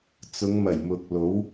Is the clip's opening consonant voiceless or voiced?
voiceless